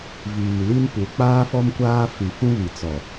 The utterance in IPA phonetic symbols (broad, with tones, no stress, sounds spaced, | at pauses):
v iː˨ l i˦ n p u˨ k͡p aː˦ f ɔ˦ m kʷ aː˦ f i˨ f ũ˦ β i˨ t͡s ɔ˨